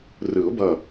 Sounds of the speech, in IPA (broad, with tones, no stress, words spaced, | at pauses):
rɯ˨˩˦ʊ̯bʌ˧˩